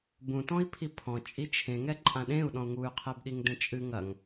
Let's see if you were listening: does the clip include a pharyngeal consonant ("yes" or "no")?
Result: no